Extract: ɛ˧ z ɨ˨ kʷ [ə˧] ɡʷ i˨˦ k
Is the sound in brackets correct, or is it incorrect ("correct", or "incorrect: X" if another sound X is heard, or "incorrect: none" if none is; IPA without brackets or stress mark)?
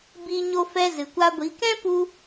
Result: incorrect: a˧